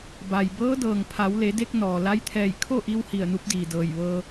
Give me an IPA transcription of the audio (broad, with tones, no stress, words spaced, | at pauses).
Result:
ba˩j bɤː˧˥dɤː˩ŋ pʰa˩˧wle˩˧de˧k̚ nɔː˩ la˧˥jt̪ʰɛː˧˩j kʰo˥˨ʔi˧w hi˧˩ə̯nu˧˥p̚diː˩dɤː˧˩j ʋɤː˧